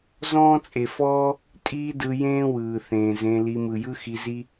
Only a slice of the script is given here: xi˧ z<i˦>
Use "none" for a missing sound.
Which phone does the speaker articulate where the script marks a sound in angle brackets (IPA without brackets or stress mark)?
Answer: i˦